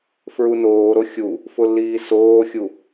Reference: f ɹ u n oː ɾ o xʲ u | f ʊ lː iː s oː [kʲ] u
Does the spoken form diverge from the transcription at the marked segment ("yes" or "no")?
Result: yes